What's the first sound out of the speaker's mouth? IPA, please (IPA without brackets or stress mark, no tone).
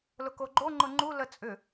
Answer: l